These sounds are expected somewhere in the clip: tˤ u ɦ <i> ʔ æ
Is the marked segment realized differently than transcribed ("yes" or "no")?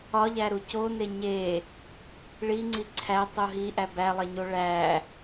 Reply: no